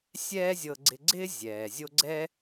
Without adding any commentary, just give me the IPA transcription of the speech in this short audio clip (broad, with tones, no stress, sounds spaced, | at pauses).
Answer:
sʲ ɛː˦ zʲ ɤ˧ ɡ͡ǀ ɪ˧ ɡ͡ǀ ɪː˦ zʲ ɛː˨ zʲ o˦ ɡ͡ǀ ɛ˦